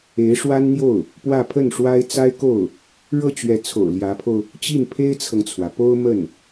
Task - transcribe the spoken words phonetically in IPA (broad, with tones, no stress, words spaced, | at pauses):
e˧˥ɪ̯ʂwa˥nn̪jo˥˩ʊ̯ | pwä˥˧pʰə˥˩nʂwa˥ɪ̯ t͡sa˥ɪ̯ko˥˩ʊ̯ | ɻɤ˥˩t͡ɕɥɛ˧˥t͡sʰo̰˨˩ʊ̯ ljä˧˥pʰo˧ʊ̯ | t͡ɕi˥˩npʰe˥ɪ̯t͡sʰɤ˨ŋt͡sʰwä˩ po˥ʊ̯ mə˥˩n